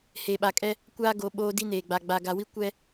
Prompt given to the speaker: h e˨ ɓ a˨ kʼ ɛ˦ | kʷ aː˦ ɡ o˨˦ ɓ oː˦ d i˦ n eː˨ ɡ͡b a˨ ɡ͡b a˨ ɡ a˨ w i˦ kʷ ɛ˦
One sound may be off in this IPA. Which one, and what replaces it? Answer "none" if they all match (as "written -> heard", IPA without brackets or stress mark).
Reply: none